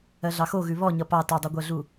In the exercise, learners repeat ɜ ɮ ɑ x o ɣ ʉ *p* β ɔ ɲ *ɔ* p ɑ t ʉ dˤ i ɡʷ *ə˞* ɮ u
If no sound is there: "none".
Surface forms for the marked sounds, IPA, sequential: none, ʌ, ɜ

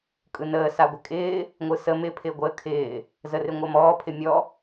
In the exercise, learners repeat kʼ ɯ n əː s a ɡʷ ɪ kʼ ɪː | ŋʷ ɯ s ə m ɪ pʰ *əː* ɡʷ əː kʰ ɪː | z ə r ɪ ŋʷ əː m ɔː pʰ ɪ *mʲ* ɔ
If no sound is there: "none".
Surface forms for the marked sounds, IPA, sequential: ɪː, mʲ

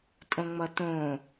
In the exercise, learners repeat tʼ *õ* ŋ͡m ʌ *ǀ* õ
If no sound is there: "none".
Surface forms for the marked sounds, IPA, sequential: õ, t

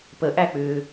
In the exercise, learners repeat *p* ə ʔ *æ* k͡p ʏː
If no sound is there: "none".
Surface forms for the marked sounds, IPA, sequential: p, æ

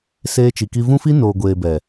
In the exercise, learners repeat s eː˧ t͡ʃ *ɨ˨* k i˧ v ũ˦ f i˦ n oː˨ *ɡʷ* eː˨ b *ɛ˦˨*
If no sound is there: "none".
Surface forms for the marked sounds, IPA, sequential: i˨, ɡʷ, ɛ˨

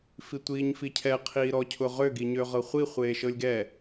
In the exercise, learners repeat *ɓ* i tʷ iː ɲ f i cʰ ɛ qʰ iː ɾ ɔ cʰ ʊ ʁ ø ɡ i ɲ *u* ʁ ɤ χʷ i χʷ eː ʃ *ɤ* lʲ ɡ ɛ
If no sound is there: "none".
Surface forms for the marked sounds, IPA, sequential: f, ø, ɤ

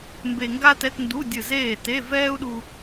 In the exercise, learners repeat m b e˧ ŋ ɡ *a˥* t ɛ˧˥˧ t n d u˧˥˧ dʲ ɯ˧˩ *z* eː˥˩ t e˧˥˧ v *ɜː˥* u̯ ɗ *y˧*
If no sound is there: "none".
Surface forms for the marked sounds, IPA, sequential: a˥, z, ɛː˥, u˧

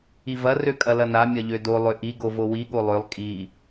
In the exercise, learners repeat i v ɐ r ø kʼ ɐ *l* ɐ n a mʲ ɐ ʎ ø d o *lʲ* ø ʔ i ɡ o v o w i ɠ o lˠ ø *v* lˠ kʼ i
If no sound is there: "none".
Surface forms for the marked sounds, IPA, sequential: l, lˠ, none

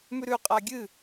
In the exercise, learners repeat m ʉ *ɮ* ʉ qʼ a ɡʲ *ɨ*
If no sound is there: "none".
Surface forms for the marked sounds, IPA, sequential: ɾ, ɨ

